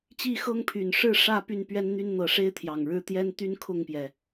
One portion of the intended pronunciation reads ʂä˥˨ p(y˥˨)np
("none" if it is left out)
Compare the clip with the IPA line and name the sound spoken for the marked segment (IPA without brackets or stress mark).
y˥˨